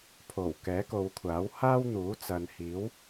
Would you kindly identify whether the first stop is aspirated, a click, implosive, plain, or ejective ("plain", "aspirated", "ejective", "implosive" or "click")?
aspirated